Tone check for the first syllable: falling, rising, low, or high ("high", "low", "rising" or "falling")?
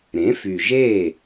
rising